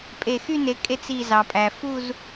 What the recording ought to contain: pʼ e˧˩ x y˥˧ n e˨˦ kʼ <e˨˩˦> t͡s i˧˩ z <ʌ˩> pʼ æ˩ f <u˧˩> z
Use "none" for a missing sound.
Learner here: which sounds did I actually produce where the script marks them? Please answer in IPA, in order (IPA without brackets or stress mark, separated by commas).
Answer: e˥˧, ɑ˩, u˥˧